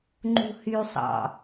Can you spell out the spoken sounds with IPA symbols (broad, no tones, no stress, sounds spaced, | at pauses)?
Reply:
ŋ͡ǃ ṳ h y sˤ ɑ̰